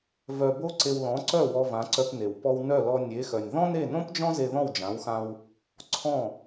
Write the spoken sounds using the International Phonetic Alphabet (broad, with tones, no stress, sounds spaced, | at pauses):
v œ˧ b o˥ ǀ e˧ w l ɔ̃˩˥ ǀ œ˥˩ w ɔ˧ v ã˩˥ ǀ œ˧ p n e˩ w p ɔ˧ w n œ˥˩ l ɔ˧ nʲ e˩˥ x œ˩ nʲ ð ɔ̃˥ n e˥˩ n õ˥ p d͡ʒ ɔ̃˥ z e˧ ð ɔ̃˥˩ w d͡ʒ ã˩˥ w x ã˧ w | ǀʰ ɔ̃˥˩